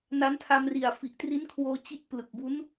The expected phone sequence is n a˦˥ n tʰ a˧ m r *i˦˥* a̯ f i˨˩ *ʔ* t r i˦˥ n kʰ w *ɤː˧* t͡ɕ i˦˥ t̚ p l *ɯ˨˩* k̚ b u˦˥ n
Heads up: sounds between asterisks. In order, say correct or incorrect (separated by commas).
incorrect, correct, incorrect, correct